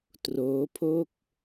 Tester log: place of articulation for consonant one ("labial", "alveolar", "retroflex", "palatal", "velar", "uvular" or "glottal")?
alveolar